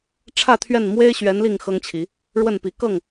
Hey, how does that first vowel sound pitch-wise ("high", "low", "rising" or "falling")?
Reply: falling